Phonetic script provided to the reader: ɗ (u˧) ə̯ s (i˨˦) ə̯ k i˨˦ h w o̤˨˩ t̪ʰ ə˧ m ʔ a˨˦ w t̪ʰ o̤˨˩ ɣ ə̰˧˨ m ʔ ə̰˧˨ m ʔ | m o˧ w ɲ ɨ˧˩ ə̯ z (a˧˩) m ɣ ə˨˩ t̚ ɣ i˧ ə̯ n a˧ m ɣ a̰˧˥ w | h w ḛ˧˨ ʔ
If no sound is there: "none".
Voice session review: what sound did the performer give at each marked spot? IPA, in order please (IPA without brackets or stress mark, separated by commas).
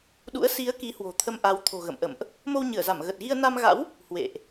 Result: ṵ˧˥, i˨˦, a˧˩